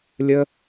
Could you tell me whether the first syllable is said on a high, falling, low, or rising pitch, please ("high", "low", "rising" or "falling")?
high